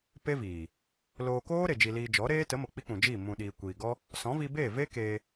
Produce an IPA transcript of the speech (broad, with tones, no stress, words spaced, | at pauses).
pe˦viː˨ | loː˧ koː˦ ɾe˨d͡ʒi˧liː˧ d͡ʒɔ˨˦ɾeː˦ tə˨˦mo˨ k͡pi˦k͡pũ˨d͡ʒiː˦˨ mũ˨ɗiː˨ kʷiː˨ɡɔ˦ | sɔ̃˨˦vi˧be˦˨ ve˦keː˧